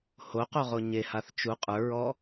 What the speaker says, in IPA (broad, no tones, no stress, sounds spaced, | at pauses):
h o q o ʁ o ɲ e h a θ t͡ʃ u qʼ ə˞ ɹ ɔ